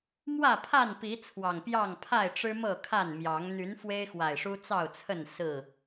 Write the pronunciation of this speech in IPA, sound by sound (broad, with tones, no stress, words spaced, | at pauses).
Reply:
mwä˥˨pʰa˥˨npi˨˦ t͡sʰwɑ˨˩ŋpjɑ˥˨ŋ pʰa˥˨ɪ̯ʈ͡ʂɻ̩˦ mɤ˥˨kʰa˥˨nmjɑ˨˦ŋ n̪y˨˦nfwe˦ɪ̯xwa˨˩ɪ̯ ʂu˦t͡sɑ˥˨ʊ̯t͡sʰə˥˨n sɹ̩˥˨